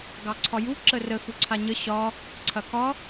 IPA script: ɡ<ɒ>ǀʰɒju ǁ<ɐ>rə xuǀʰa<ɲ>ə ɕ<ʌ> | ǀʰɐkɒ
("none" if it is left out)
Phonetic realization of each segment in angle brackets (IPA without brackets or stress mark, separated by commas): ɑ, ə, ɲ, ɒ